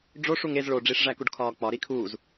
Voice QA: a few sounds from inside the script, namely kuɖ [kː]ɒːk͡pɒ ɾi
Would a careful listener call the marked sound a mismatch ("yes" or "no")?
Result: yes